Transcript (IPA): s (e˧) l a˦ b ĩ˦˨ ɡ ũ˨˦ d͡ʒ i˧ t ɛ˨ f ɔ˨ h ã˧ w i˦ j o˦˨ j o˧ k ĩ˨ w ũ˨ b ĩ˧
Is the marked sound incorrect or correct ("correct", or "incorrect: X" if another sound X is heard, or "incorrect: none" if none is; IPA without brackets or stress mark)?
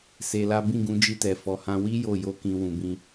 correct